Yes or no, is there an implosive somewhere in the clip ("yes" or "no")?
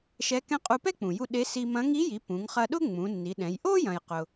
yes